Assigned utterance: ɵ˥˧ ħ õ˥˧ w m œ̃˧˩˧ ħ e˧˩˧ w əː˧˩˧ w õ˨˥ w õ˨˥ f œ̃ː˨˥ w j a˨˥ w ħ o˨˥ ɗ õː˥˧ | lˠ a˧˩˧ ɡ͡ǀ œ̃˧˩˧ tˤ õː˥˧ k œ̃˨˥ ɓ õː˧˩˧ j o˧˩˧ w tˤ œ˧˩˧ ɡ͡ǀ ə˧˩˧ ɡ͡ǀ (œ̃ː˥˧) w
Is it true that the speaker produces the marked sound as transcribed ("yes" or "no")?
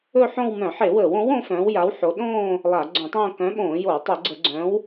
no